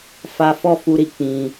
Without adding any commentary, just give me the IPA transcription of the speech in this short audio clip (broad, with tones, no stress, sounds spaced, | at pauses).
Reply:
f a˦ f ɔ˦˨ f u˧ ɾ i˨ k͡p ĩ˧